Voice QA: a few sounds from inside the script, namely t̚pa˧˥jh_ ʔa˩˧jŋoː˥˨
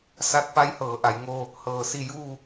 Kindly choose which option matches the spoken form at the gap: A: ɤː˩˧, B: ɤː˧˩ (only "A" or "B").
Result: A